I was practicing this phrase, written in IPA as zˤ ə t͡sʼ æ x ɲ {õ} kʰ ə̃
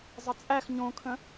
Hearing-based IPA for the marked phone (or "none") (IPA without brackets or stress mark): õ